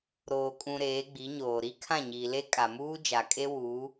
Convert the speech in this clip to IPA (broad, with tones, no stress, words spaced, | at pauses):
ɾoː˨kʼũ˨ ɾeː˨˦ɡ͡bi˨˦ɲoː˨ ɾi˦kʰã˦˨ɲiː˨le˦ kʼa˨muː˦d͡ʒa˨kʼe˦ wuː˨˦